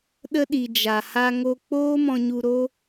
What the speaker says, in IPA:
ɗ ə˧ ɗ i˨ d͡ʒ a˨ h a˧ ŋ o˧ k͡p oː˦ m ɔ̃˧ ɲ u˧ ɾ o˦

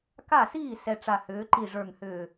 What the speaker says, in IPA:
k a˥˩ s iː˥˩ s ɛ˨˩ ʈ͡ʂ a˨˩ h ʏː˩˧ ǃ i˨˩ ʐ ə˞˨˩ ŋ h ʏː˨˩

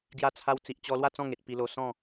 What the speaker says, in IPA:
ɡ j a˧ t͡sʰ a˧ w t͡s i˨ ʔ t͡ɕ ɔ˧ l w a˥˧ t͡s ɔ̃˥˧ ŋ e˨ t̚ p i˧ l o˧ s ɔ̃˥˧

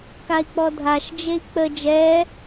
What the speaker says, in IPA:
k a i̯ k͡p ɔ dʱ a ʃ d͡ʒ e i̯ k͡p ə d͡ʒ ɛ

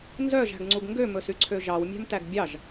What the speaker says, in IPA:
n z œ ʒ æ̤ ɡ ŋ͡ǀ u ɡ ŋ ɡ ø m ɵ s y ǀʰ ø ʒ ɑ w mʲ æ̤ m t æ ɡ bʲ ɑ ʒ

